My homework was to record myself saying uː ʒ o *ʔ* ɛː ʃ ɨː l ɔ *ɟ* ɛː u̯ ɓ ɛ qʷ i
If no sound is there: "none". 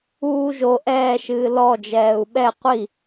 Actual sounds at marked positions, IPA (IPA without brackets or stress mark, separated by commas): ʔ, d͡ʒ